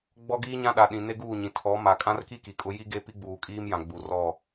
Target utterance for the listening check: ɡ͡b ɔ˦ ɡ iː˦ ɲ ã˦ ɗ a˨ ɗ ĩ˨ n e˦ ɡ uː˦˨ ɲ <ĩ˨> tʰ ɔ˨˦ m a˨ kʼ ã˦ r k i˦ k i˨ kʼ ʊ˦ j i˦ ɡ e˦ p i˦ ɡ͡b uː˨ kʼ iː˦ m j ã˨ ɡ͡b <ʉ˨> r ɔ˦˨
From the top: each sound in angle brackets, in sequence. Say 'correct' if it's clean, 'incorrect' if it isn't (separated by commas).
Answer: correct, incorrect